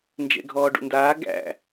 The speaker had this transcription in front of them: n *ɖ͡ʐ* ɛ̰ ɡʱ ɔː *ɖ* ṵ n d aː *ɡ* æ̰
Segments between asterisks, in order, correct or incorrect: incorrect: d͡ʒ, correct, correct

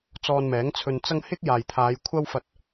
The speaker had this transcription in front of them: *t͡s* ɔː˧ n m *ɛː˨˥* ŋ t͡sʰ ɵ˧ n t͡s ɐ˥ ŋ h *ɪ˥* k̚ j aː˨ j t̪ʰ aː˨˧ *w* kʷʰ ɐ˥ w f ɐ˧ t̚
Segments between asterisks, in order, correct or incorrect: correct, correct, correct, incorrect: j

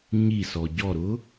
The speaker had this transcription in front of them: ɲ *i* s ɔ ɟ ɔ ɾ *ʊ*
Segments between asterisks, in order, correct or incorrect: correct, correct

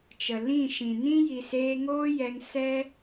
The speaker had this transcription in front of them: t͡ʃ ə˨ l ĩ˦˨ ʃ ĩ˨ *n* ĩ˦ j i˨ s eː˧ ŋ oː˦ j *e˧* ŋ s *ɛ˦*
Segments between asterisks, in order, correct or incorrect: correct, incorrect: ɛ˧, correct

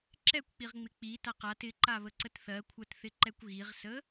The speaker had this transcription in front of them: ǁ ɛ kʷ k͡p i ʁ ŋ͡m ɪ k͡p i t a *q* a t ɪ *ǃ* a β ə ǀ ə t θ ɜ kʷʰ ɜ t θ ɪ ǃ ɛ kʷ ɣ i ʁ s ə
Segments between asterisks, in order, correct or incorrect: correct, correct

